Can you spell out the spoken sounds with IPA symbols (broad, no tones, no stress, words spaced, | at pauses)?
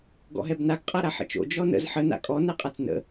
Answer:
ɡɔ̰ɦɛbnaɡ qʼaɾaħə̰t͡ʃo̰ d͡ʒɔnə̰z ħə na̰kʼɔ nɛqʼat͡snə̰